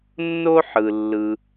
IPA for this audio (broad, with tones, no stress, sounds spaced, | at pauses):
nː o˦ ħ ɯ˨ lː ɯ˧